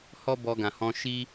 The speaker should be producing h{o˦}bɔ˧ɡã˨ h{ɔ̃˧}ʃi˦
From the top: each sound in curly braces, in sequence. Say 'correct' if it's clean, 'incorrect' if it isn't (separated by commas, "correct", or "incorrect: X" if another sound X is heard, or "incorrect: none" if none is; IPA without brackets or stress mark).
incorrect: ɔ˦, correct